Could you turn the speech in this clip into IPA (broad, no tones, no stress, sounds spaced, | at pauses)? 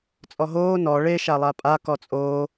t͡sʼ ɔ ɦ oː n ɔ ɭ e ʃ a lˠ a pʼ a k ɔ t͡sʼ oː